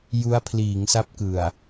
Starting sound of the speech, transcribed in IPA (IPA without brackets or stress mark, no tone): j